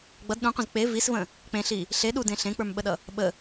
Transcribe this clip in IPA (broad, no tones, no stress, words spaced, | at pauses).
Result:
ɡ͡bʌd ɗũqʷə̃z k͡pe visvə̃ | k͡pẽɬi | ɬe ɗudẽ ɬẽk͡pə˞mɓəɗʌ | ɓə